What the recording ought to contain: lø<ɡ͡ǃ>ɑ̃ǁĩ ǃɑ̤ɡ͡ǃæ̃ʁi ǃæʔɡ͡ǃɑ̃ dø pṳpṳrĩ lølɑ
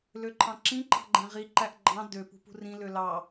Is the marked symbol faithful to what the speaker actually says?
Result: no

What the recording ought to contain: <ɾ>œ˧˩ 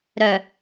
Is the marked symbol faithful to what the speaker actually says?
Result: yes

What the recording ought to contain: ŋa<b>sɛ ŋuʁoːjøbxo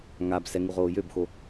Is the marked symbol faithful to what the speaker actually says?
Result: yes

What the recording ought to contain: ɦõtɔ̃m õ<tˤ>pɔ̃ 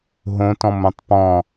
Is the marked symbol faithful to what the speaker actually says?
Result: yes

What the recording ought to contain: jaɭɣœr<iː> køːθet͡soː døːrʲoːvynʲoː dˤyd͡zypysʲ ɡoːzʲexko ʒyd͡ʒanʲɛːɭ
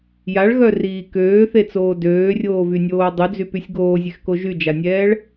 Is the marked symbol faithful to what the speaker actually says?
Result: yes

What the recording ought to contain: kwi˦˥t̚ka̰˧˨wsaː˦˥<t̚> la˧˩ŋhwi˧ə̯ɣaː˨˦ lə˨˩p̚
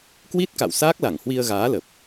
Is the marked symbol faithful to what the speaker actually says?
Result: no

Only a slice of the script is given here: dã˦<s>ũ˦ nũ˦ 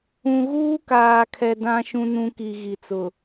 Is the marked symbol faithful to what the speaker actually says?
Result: no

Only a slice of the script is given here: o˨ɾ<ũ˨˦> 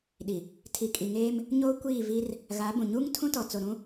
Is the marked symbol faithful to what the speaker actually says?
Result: no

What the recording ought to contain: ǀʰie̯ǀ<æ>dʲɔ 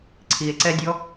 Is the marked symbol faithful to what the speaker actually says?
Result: no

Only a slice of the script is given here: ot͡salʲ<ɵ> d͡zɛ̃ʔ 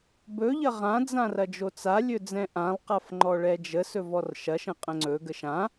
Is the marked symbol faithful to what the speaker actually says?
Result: yes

